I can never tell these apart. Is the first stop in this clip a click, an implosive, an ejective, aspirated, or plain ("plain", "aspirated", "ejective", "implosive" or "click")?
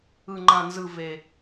click